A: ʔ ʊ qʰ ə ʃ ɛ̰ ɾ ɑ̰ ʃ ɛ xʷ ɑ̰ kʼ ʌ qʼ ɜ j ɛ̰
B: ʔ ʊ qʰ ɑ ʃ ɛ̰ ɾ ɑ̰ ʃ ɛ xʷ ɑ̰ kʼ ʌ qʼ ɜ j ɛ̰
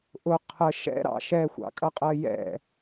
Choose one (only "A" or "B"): A